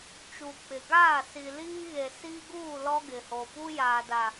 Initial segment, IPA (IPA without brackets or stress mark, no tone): t͡ʃ